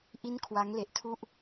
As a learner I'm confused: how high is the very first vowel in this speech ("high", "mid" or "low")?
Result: high